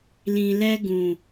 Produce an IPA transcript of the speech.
l ĩ˨ l ɛ˧ ɡ ũ˨

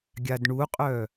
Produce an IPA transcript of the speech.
ɡʲ a d ɳ u qʼ œ

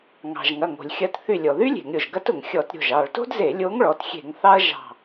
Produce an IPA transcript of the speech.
ŋ ɑ̤˩ ʒ ŋ ɐ˩˧˩ ŋ o̤˩ lʲ xʲ ɐ˧˩ t θ y˧˩ lʲ ɔ˩ ð y˥ lʲ e̤˧˩˧ ŋ ɾʲ o˩ ʒ ɡ ɐ˥ t ʊ˩ ŋ xʲ ɔ˧˩˧ t ɾʲ o̤˩˧˩ ʒ ɑ˧˩ ɭ t o̤˥ d z e˧˩˧ lʲ o˧˥ ŋ ɭ ɔ˩˧˩ t xʲ e̤˧˩˧ ŋ θ ɑ˥ ɐ̯ ʒ ɑ̤˧˩

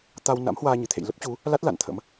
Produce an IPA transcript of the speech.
t̪ a˧ w n a̰˧˥ m h w aː˧ ɲ ɨ˧˩ t̪ʰ ḛ˧˨ j l ə˦˥ p̚ t͡ɕ u˨˦ | l a˦˥ t̚ l a̰˧˨ n t̪ʰ ə̰˧˥ m

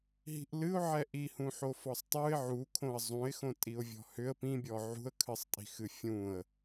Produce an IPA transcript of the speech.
ɦ i̤ ʔ l ɨ ʊ̯ ʕ ɛ ʔ i h ũ ħ o f ɔ sˤ tˤ u ɪ̯ ʕ u kʰ õ ə̯ zˤ ũ ɪ̯ x õ tʼ i ʊ̯ vʲ ɔ̤ h ʏ ə̯ p ĩ bʲ ɔ ʕ ṳ ə̯ kʰ ɨ sˤ tʼ i̤ x ɨ fʲ ũ ə̯

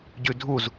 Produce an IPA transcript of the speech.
ɟ ʉ dʱ u z

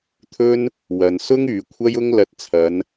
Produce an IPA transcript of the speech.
t̪ʰ ɵ˥ n | w ɐ˨ n s ʊ˥ ŋ yː˨ kʷʰ ɐ˧ j ʊ˧ ŋ l ɐ˧ t̚ t͡sʰ ɐ˨˧ n

